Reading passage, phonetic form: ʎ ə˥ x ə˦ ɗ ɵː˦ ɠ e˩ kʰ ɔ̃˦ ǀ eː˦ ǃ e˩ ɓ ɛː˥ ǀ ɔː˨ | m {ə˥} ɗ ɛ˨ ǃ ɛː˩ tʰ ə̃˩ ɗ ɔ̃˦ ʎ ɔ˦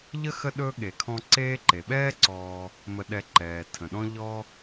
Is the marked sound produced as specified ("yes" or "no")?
no